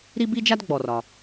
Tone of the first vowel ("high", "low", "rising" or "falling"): high